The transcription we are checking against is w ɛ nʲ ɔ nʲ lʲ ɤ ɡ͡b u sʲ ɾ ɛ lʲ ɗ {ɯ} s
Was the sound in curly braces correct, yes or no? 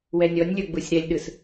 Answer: yes